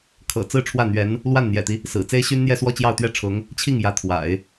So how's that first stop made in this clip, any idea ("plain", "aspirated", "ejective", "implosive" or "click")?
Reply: aspirated